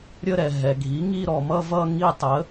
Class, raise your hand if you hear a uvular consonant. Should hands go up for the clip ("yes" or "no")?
no